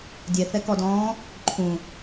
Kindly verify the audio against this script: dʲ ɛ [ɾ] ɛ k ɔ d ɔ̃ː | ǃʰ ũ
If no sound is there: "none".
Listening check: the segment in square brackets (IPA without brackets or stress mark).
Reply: θ